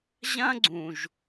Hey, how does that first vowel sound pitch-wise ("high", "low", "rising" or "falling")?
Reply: high